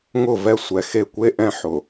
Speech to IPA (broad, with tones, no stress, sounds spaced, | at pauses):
ŋ ʊ˦˨ v ɛ˦ sʷ ɛ˨ x e˦˨ kʷ e˦ ʔ ɛ̃˦ ħ ʊ˨